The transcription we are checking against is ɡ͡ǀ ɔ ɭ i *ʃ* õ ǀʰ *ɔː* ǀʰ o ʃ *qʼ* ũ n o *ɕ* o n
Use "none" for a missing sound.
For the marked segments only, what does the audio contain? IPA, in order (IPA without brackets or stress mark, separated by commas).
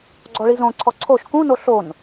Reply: z, ɔ, k, ɬ